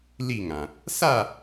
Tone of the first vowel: falling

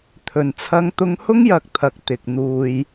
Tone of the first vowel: low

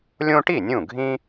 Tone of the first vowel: high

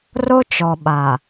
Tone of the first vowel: high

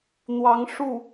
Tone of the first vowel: rising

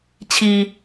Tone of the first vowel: low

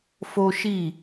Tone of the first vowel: high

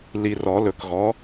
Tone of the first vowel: low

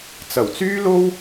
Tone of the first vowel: low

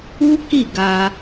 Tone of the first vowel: high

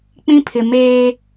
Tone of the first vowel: high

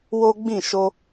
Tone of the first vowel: high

